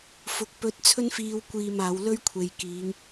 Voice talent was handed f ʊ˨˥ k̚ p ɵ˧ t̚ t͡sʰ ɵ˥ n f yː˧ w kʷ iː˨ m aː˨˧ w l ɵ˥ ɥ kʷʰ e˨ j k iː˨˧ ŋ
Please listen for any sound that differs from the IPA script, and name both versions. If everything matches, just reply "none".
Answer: yː˧ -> iː˧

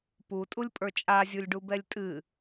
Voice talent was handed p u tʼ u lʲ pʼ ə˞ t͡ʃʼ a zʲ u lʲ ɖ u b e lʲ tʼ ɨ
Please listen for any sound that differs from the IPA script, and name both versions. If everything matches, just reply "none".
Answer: e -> ɛ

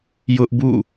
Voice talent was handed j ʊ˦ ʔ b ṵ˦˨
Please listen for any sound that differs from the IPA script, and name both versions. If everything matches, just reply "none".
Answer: none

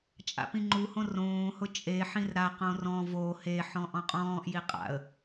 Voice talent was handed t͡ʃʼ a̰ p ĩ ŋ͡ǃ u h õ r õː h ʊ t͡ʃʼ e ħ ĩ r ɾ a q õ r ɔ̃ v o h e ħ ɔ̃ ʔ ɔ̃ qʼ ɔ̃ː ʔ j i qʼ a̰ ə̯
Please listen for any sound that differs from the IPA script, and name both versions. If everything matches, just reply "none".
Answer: none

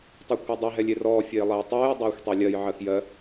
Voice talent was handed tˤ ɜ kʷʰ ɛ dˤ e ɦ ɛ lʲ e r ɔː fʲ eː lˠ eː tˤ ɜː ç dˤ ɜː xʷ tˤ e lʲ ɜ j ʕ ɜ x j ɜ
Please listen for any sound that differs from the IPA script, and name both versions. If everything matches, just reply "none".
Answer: ç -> j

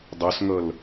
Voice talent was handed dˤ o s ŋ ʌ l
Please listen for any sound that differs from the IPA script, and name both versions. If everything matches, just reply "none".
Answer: none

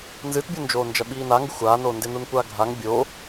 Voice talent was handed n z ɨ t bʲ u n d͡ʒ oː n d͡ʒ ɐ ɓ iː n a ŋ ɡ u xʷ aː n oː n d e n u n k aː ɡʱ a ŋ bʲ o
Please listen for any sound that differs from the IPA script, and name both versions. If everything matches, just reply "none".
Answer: k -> kʷ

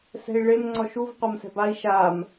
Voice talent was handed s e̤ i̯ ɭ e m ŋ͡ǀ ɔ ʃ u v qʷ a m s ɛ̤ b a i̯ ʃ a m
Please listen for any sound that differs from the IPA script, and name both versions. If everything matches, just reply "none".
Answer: e̤ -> ɛ̤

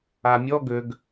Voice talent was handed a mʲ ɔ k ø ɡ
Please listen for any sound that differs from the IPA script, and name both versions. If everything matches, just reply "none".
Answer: k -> ɡ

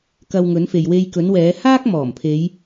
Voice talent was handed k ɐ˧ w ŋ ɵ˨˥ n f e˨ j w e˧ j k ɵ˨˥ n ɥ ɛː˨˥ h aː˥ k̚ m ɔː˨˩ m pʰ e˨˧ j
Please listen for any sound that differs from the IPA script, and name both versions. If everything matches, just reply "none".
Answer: ɥ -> w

